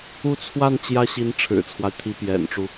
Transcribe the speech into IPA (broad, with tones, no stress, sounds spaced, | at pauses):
u˥˧ t͡sʰ w a˥˩ n t͡ɕ j ä˥ ɕ i˧˥ n ʈ͡ʂʰ ɻ̩˨˩ t͡sʰ w a˦ ɪ̯ t̪ʰ i˧˥ p j ɛ̰˨˩ n ʈ͡ʂ u˦